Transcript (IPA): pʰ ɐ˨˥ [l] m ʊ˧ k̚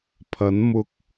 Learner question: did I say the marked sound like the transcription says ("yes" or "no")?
no